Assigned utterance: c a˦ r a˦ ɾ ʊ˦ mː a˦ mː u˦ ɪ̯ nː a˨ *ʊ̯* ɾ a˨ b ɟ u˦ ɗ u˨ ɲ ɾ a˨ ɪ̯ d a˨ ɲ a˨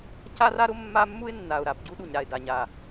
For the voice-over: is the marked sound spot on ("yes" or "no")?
yes